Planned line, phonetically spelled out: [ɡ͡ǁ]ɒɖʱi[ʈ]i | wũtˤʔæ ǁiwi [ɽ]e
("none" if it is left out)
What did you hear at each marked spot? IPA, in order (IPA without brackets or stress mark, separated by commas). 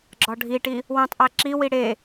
ɡ͡ǁ, ʈ, ɽ